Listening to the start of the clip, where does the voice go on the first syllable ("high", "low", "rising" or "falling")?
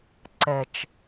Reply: low